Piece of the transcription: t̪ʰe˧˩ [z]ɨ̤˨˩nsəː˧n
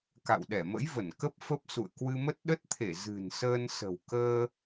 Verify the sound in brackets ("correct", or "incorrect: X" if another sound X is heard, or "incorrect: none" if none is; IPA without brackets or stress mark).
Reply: correct